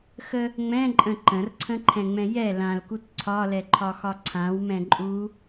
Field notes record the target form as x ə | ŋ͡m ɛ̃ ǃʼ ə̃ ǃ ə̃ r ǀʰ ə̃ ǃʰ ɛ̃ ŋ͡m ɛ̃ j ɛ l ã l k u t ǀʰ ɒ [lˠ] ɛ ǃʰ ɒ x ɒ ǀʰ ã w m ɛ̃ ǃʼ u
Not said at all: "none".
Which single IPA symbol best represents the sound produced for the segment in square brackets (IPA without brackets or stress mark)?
l